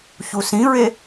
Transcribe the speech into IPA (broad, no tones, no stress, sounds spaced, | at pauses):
ç u s ĩ ɹ e